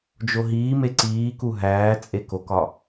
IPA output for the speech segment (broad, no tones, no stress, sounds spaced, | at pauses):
d͡ʒ o ɦ iː m e ǀ iː k u ɦ æː t͡sʼ e k o k ɒ